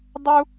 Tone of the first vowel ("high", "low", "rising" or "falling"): high